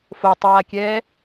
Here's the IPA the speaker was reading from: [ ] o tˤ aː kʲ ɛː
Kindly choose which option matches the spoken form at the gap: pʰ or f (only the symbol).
f